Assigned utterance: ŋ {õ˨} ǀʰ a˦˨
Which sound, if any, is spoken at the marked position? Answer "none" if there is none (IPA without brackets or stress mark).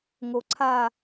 o˨